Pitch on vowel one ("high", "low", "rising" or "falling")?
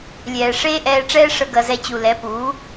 low